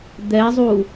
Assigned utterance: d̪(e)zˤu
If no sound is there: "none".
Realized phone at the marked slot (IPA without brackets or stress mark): ɛ